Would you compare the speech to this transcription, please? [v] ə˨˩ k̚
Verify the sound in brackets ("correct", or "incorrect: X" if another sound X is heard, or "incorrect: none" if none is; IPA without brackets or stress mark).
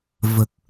correct